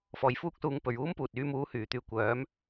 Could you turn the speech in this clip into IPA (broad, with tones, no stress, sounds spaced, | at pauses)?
f ɔː˨ j f uː˥ k̚ s uː˧ ŋ p ɵ˨ ɥ uː˥ m p uː˨ t̚ yː˨˧ m uː˨˥ h yː˨˩ t̪ yː˧ kʷ œː˨˥ m